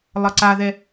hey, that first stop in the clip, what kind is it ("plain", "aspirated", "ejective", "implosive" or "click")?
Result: click